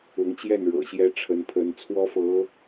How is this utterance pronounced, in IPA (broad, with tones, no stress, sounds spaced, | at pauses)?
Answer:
ʊ˧˥ ŋ t͡ɕ j ɛ˥˩ n ɻ ɤ̰˨˩ ɕ j ɛ˥ ʈ͡ʂʰ ə˧˥ n pʰ ə˧˥ n t͡sʰ w ɔ˥ f ɤ˧˥